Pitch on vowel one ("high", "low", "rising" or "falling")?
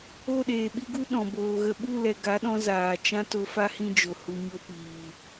falling